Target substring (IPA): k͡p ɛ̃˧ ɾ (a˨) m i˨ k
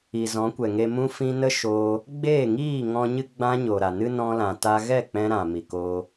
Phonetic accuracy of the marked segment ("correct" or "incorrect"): incorrect